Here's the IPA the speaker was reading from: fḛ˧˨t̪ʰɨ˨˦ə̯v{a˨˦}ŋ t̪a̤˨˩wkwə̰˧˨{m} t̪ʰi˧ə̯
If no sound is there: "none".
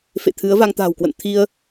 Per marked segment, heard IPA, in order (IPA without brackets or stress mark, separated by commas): a˧, n